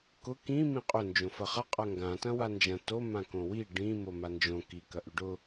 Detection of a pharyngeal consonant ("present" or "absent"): absent